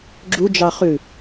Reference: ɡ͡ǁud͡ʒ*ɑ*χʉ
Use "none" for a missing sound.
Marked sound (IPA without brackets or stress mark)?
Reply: ɑ